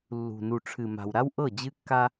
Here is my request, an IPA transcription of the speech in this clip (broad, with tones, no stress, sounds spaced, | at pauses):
lː ṳ˨ n u˨ ʈ͡ʂʰ ɨ˨ m a̤˨ w ɾ a˦ w ʔ ɤ˦˨ d͡ʑ ɨ˦ kː a˦